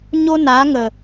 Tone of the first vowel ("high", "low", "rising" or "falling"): high